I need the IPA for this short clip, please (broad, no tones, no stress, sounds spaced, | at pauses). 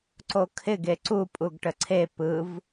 ǀ o kʰ ɪ ɡ e ǀ u pʼ u ɡ ʈ ə ǀʰ e p ɯ v